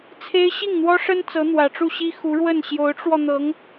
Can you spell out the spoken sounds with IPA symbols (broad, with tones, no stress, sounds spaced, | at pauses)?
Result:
t͡sʰ e˥ ɪ̯ ɕ i˥˩ ŋ n̪ w ɔ˥ ʂ ə˥ n t͡s ɤ˧˥ n̪ w ä˨˩ ʈ͡ʂ u˥˩ ɕ i˥ x u˧˥ ɻ w ə˥˩ n ɕ j o˧˥ ʊ̯ ʈ͡ʂ w ɔ˧ n̪ ɤ˧˥ ŋ